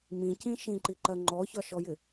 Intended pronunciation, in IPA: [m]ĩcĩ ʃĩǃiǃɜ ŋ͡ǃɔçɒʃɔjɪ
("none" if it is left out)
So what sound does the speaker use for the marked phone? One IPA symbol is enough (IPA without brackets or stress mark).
m